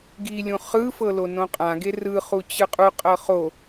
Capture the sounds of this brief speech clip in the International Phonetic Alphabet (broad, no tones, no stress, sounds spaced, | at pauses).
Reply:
ɡ i lʲ ũ χ ɯ f ɤ l o n õ qʼ ã ɡ e r ɯ χ u t͡ɕ ɯ qʼ u qʼ ɤ χ o